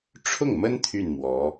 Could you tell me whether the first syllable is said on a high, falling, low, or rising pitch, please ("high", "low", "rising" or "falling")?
falling